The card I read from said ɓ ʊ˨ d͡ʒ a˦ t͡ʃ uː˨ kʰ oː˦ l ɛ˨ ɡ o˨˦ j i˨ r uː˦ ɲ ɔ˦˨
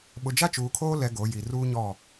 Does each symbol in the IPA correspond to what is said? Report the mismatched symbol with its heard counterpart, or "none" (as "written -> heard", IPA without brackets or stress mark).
none